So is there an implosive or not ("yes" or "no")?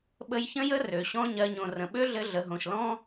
yes